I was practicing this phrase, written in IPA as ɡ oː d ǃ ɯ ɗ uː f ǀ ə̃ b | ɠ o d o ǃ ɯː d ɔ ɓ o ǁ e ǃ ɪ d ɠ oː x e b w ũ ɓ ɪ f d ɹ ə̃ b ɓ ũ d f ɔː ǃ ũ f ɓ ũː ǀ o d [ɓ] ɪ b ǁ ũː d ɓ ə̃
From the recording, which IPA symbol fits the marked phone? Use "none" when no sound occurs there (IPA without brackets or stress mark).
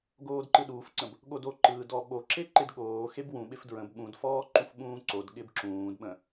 ɠ